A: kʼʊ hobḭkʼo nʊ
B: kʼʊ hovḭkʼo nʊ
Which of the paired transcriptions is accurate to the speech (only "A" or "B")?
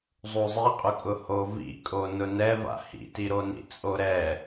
B